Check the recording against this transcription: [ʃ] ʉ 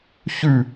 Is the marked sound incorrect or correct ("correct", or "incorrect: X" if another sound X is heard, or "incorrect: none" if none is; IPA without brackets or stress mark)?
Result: incorrect: ç